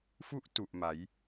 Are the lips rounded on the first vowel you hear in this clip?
yes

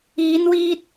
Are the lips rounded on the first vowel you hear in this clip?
no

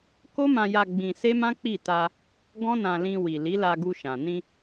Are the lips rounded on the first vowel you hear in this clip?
yes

